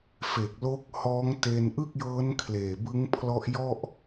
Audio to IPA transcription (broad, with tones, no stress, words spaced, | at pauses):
fe˨˩k̚lo˦˥k̚hɔː˦˥ŋ te˧nʔɯ˥˩k̚jɤː˦˥n kʰleː˨˩bɯ˦˥ŋ pʰlɔ˦˥ʔjɔ˥˩ʔ